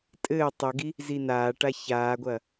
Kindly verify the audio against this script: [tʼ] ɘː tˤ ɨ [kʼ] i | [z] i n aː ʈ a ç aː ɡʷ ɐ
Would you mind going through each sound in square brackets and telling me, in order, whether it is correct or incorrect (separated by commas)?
correct, incorrect, correct